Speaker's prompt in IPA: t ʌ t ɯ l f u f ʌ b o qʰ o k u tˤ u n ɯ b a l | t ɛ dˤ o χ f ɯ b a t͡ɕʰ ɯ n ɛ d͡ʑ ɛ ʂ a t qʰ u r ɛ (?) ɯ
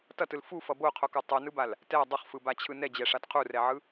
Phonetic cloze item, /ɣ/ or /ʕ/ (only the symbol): ʕ